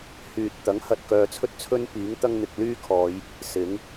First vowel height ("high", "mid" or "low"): high